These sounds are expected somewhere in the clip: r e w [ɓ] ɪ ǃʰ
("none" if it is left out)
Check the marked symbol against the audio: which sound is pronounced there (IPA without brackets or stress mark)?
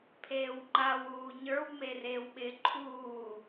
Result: ɓ